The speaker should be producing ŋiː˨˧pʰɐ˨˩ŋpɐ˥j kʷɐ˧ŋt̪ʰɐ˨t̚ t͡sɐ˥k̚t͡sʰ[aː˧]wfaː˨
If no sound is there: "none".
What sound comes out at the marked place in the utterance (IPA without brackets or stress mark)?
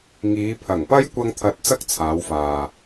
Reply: aː˨˧